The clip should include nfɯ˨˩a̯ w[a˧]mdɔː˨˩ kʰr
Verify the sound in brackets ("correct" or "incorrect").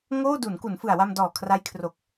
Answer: correct